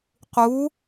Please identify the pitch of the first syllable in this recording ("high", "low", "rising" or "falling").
rising